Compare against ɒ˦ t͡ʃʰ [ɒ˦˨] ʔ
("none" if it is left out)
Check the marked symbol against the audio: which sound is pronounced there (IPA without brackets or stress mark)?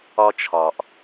ɒ˨